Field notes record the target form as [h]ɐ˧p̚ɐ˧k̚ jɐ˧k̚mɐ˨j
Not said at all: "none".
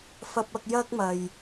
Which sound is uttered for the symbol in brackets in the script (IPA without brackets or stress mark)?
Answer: f